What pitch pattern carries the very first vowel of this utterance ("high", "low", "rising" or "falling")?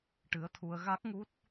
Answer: rising